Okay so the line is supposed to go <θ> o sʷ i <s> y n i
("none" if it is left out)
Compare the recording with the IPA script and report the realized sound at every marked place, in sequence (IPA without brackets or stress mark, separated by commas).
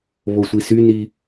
β, s